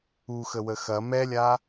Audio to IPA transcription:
u x ə w ə x ɐ m ɛ lʲ a

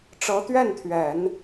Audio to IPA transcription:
ʈ͡ʂ ɤ˧˥ t̪ ɥ ɛ˥˩ n t̪ʰ ɥ ɛ˨˩˦ n

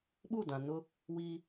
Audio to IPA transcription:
ɓ u˦˨ d ã˨ n ʊ˦ | w i˦

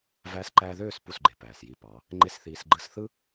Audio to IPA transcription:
v æː˦ s ǃ æː˧ ð øː˦˨ s p u˦˨ s ɡ͡ǃ e˨ p æː˨ s j i˧ p ɑ˨˦ | ŋ͡ǃ e˦ s θ iː˧ s ɡ͡ǃ ɯ˦ s θ ɯ˦

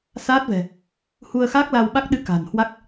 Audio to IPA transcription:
s aː˦˥ t̚ v ɛ̤˨˩ | h u˧ ə̯ x aː˦˥ k̚ l a˧ w ɓ a˦˥ k̚ ɗ ɨ˧ k a̤˨˩ n h w a˦˥ k̚

